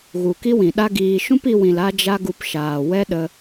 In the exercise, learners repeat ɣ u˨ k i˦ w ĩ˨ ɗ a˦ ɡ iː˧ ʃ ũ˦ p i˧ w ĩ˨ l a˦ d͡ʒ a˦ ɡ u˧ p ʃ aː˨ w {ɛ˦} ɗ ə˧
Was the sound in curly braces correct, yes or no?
yes